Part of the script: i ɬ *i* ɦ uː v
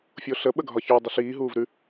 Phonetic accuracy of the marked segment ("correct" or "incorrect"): incorrect